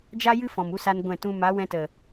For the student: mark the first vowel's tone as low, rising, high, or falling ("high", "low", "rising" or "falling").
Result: high